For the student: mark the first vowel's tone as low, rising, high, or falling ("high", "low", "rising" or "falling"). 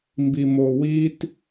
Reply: low